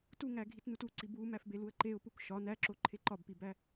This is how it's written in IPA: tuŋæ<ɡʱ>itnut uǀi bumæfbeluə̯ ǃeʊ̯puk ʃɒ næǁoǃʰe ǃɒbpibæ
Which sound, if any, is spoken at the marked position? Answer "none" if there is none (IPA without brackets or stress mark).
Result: ɡʱ